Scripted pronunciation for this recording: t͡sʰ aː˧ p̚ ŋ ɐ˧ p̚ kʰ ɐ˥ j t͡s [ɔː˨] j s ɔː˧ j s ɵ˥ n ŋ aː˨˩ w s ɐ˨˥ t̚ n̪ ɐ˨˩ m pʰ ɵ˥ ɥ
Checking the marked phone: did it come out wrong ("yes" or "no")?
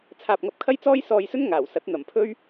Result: yes